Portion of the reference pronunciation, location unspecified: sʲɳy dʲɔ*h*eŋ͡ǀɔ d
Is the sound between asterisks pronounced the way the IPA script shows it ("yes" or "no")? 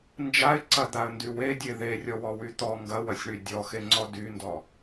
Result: no